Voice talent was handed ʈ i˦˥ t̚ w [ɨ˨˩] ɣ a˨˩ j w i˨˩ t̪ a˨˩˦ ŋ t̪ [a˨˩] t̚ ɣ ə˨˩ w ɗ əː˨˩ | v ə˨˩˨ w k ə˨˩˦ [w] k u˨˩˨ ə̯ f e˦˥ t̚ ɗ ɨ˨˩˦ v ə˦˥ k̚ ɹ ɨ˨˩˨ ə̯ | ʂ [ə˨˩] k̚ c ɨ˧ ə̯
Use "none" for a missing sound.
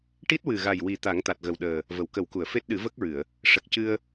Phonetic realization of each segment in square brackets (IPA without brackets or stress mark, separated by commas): ɨ˨˩, a˨˩, w, ə˨˩